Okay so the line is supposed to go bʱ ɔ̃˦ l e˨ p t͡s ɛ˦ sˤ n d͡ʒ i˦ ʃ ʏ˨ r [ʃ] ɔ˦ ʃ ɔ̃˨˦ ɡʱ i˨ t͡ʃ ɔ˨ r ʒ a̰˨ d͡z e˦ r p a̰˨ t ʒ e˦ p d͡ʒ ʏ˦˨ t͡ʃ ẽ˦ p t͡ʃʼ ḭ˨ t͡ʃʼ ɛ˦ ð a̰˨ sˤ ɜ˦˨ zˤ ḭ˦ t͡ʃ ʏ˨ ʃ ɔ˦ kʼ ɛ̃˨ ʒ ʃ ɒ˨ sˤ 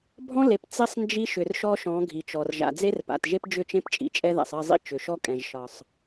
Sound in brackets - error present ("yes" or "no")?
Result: no